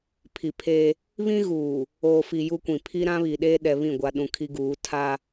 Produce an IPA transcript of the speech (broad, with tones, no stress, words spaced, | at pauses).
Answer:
pʰi˨pʰeː˦ | βĩ˦ɣuː˨ | oː˨fi˨ ju˦kʷĩ˨ pʰi˦ɾã˦ βi˨ɗeː˦ ɗɛ˨ βĩ˦˨ ɡʷa˨ɗũ˨ kʰi˦ɡuː˨˦ tʰa˦